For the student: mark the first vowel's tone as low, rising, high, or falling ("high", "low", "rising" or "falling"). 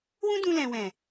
high